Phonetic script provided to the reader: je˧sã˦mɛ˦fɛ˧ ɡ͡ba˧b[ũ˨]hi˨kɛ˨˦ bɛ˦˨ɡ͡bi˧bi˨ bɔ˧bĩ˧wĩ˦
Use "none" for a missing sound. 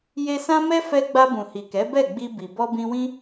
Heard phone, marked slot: ũ˨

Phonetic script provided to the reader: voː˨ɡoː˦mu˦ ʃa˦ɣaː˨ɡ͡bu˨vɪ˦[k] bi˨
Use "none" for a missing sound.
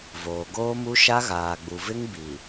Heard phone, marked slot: ŋ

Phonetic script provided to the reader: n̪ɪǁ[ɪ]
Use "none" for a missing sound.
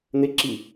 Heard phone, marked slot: i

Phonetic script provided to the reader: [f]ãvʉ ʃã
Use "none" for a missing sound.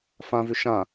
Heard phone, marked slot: f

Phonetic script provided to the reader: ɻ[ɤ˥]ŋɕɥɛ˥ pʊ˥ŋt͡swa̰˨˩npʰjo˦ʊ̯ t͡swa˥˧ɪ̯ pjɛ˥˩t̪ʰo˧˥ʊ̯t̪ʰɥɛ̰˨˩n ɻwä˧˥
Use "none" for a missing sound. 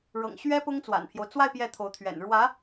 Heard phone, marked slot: ɤ̰˨˩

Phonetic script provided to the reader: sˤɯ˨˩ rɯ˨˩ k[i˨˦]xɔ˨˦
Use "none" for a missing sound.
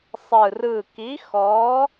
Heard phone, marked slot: i˨˦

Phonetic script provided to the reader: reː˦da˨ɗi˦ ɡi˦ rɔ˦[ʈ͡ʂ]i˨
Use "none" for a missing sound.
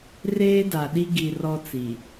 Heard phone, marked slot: t͡s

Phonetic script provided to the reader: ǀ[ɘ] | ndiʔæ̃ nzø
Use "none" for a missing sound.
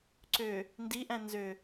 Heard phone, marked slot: ø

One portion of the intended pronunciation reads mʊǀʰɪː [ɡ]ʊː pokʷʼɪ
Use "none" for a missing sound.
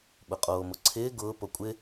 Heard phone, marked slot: ɡ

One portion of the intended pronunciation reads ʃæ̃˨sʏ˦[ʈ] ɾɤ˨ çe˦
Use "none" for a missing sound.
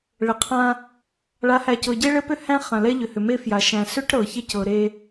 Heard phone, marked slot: ʈ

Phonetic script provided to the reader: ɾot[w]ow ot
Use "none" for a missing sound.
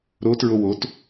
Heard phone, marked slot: ɹ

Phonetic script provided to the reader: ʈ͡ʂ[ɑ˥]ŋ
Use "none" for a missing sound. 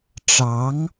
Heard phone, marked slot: ɑ˧˥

